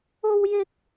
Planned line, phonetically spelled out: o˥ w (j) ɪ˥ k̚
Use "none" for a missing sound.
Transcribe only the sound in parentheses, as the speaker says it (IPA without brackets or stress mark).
j